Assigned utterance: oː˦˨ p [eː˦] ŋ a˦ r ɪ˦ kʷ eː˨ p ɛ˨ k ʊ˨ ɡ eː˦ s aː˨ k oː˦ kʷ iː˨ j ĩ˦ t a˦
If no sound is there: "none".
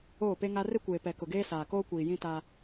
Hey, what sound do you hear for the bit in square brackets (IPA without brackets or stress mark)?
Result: e˦